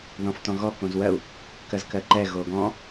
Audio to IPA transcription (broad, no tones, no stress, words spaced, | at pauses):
ðɔ̃ftɔ̃ɣɔ kõzwɜu̯ | kɜzkɜǃɛ ɣoɡɔ̃